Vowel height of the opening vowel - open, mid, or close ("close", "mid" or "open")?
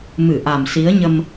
close